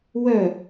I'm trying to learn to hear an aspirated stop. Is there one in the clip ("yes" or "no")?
no